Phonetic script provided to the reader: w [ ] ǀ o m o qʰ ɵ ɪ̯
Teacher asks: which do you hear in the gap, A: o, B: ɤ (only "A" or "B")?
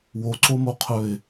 A